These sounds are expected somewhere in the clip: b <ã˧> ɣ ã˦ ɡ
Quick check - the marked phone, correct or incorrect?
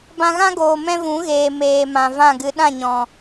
correct